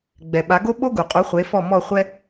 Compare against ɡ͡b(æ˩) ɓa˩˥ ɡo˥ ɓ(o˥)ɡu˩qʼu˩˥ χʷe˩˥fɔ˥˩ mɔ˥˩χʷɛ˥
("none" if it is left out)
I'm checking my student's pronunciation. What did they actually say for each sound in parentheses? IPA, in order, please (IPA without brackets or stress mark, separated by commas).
ɛ˩, o˥